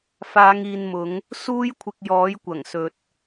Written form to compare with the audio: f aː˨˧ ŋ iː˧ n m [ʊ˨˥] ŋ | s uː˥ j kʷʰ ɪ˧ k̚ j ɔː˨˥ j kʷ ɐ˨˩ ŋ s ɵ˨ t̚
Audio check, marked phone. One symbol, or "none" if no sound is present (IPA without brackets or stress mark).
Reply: ʊ˨˥